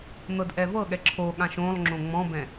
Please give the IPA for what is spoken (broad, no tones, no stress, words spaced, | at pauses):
n̪ɤdʔɛvɤɠɛ ǁʰoɠãʃ õlˠ ŋ͡ǁõŋ͡mɔ̃bɛ̃